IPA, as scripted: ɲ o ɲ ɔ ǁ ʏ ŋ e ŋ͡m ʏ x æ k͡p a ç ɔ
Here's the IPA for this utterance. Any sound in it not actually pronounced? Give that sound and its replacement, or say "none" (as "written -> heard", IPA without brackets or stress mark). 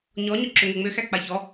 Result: o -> ɔ